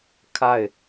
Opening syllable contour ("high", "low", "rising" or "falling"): falling